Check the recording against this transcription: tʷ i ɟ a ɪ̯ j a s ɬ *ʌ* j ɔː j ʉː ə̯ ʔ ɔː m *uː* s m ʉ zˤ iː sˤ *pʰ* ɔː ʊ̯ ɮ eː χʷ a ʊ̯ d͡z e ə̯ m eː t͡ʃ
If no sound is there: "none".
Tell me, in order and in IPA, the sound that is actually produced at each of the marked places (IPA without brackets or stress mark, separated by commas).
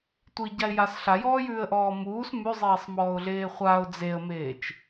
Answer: a, uː, m